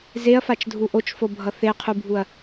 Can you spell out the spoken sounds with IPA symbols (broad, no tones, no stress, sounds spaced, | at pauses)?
z e ɐ̯ f a t͡ʃ dʱ u ʔ o t͡ʃ f o bʱ ʌ θ e qʰ u bʱ u ɐ̯